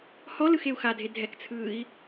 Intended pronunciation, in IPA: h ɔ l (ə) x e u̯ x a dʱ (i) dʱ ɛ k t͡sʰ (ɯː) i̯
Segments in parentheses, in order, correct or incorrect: incorrect, incorrect, correct

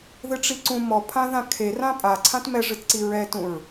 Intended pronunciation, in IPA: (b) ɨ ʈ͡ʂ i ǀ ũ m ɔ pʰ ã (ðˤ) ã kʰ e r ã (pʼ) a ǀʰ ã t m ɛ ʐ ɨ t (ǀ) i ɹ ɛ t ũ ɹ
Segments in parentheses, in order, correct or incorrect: incorrect, incorrect, correct, correct

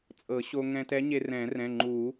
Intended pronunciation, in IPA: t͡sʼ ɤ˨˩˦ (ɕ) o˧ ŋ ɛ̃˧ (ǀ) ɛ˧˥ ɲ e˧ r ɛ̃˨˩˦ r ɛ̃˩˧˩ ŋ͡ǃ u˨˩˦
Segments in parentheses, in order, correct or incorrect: correct, incorrect

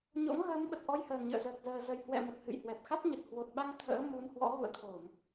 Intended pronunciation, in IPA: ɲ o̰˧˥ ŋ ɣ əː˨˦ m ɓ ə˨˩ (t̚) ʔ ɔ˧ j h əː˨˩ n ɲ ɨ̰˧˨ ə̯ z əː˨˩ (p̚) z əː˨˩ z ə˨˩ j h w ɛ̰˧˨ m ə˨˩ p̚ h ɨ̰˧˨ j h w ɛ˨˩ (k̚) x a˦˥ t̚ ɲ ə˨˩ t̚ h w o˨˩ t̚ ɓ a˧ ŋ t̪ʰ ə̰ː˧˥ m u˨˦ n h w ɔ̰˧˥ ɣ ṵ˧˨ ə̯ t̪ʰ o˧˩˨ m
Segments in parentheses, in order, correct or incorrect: correct, incorrect, incorrect

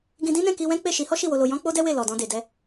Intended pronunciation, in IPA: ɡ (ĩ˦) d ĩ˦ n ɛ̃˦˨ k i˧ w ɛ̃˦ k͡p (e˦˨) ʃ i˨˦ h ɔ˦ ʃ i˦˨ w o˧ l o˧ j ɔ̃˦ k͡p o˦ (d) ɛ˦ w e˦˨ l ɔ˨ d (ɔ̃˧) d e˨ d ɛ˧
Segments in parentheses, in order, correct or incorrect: incorrect, correct, correct, correct

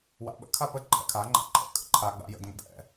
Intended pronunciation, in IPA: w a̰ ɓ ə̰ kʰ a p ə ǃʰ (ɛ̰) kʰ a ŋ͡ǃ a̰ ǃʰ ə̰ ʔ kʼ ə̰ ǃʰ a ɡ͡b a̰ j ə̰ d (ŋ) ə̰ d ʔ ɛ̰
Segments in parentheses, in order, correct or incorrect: correct, correct

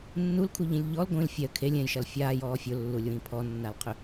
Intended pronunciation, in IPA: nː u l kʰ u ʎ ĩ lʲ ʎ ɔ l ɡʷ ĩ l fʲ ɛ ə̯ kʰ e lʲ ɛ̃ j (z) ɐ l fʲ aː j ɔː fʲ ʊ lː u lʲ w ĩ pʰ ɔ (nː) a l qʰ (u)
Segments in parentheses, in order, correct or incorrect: incorrect, correct, incorrect

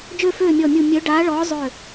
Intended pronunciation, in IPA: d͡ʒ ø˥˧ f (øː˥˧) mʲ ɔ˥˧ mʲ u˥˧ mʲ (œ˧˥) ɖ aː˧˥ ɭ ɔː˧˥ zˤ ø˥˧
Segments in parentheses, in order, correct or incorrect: correct, correct

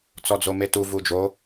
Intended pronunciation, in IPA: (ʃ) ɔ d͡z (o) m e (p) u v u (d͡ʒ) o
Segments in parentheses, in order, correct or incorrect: incorrect, correct, incorrect, correct

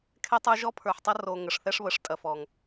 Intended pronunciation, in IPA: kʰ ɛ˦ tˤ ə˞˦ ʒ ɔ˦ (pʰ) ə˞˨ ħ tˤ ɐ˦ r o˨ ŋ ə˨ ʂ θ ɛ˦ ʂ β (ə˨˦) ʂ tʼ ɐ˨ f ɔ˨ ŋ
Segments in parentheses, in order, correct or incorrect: correct, correct

